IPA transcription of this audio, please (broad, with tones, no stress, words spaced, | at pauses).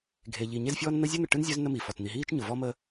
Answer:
ɡʱe˨ʎi˨ ɲe˦zfʲɔː˦nn̪ə˦ zʲœ˦n̪ə˨ʈɯ˦nzʲœ˦z nə˦mi˨fɔ˨t n̪i˨ɦiː˦t͡ʃɲʊ˨vɔ˦ mə˦